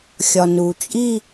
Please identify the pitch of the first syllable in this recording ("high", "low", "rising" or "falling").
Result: low